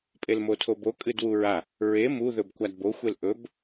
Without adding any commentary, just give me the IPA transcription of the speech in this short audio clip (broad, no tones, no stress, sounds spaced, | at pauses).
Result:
pʼ e l m o tʰ o b o kʼ ɨ d w u ɹ a | ɹ e m u ð ɵ b kʷ a d b o xʷ e l ʔ ɵ b